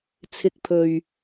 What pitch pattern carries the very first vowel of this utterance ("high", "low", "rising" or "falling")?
rising